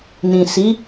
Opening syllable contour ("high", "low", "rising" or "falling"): low